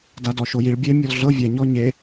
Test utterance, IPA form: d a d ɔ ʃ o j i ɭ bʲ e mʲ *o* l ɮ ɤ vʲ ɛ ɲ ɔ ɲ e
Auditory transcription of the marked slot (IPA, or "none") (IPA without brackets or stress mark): ɔ